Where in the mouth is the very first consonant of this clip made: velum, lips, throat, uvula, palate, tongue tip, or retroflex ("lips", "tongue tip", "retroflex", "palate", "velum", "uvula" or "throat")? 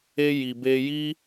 palate